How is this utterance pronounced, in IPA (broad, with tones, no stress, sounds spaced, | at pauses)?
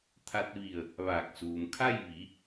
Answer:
t̪ʰ a˧ t̚ ʋ i˧˩ ə̯ | ʋ aː˧˩ k̚ s uː˩ m kʰ a˥˨ j ʋ i˩˧